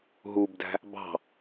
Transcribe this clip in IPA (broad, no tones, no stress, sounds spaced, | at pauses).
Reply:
ɦ u b d æ̤ | b ɑ̤